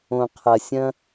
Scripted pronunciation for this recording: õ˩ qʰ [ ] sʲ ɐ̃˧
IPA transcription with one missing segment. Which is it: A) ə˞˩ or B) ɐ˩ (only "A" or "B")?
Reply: B